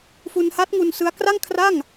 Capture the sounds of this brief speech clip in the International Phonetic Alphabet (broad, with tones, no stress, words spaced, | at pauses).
fu˧nha˦˥t̚ŋu˧n sɯ˦˥a̯ kra˥˩ŋkʰra˥˩ŋ